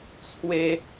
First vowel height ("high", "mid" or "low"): mid